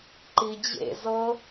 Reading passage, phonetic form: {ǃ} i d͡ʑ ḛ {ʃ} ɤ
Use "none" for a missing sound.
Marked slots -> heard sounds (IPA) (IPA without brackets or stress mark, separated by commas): ǃ, z